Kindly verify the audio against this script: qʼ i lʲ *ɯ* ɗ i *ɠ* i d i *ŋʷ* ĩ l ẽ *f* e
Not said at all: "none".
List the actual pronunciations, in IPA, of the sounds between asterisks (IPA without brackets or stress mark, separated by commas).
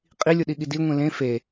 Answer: u, ɠ, ŋʷ, f